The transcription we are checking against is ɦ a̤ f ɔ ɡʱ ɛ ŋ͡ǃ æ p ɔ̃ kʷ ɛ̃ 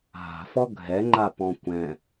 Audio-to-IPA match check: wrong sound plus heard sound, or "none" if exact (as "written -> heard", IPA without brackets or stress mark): æ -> a